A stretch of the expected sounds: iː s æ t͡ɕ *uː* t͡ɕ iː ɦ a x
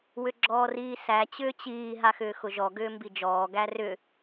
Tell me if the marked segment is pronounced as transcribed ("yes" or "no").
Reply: no